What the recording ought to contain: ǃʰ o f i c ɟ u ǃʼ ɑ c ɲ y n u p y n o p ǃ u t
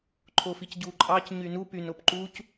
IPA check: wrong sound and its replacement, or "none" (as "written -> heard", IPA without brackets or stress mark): t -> c